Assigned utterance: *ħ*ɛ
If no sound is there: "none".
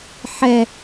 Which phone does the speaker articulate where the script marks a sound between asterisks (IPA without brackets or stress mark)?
ħ